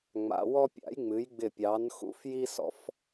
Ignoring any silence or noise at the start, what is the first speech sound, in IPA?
ŋ͡m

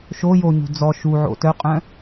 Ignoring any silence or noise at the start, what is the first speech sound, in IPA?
ʃ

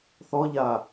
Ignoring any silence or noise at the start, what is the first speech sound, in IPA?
θ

